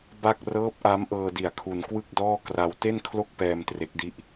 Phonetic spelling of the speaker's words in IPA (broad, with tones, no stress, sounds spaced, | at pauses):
b a˥˩ k̚ r ɤː˦˥ p̚ ʔ a˦˥ m ʔ ɤː˧ d i˨˩ a̯ kʰ u˧ n k w ɯ˥˩ k̚ d ɔː˥˩ k r a˧ w t e˥˩ n kʰ l o˥˩ k̚ p ɛː˧ m t r e˦˥ k̚ d i˥˩ ʔ